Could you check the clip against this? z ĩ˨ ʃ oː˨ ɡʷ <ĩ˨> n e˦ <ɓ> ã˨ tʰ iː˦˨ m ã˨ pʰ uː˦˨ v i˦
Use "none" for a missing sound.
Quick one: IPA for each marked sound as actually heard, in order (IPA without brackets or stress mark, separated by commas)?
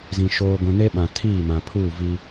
ĩ˨, ɓ